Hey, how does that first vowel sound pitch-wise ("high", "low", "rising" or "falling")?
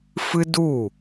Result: high